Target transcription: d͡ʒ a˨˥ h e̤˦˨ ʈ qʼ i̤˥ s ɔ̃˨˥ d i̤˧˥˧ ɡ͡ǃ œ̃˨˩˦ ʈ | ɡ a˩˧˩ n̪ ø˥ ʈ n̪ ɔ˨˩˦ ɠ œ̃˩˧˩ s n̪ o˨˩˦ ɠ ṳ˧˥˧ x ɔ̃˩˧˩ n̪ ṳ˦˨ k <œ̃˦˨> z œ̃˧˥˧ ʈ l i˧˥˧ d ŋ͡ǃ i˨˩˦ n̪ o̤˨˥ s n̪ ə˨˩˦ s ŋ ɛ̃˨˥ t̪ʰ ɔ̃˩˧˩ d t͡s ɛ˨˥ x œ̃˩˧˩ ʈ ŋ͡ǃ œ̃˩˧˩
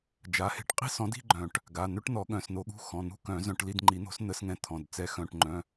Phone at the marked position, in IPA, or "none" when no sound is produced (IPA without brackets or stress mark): œ̃˨˩˦